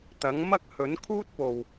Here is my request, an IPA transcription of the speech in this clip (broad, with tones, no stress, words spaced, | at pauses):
t̪ɐ˨˥ŋmɐ˥k̚ hɵ˨˥nkʰuː˥t̚po˨w